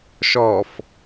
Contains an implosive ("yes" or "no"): no